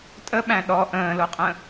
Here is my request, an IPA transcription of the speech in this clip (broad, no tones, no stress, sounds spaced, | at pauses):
tʼ ə ɓ æ̃ ɗ ɔ ʔ ə̃ː l o qʼ ə̃